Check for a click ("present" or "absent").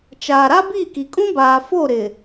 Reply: absent